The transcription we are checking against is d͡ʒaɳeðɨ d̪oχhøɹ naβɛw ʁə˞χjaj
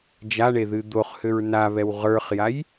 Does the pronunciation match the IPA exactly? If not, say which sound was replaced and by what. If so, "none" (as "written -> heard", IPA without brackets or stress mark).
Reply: none